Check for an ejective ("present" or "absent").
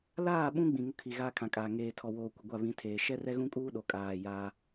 present